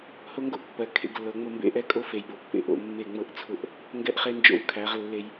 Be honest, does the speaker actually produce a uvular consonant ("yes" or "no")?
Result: yes